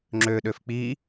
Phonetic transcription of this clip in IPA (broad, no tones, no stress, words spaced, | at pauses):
ŋ͡ǁøɗøf k͡pi